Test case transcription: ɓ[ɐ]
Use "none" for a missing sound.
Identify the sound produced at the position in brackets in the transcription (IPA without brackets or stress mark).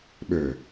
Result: ə˞